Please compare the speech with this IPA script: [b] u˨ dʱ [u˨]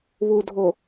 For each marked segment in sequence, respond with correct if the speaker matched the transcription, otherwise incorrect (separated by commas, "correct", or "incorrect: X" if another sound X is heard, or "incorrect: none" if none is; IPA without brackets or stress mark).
incorrect: β, incorrect: o˨